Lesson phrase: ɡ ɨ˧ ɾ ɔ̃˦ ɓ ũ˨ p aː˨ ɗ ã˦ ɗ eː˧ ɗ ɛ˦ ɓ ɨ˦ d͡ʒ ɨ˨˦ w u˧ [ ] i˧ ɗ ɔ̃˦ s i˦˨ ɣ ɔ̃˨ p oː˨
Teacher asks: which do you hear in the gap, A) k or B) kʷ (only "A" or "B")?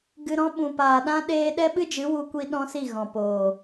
B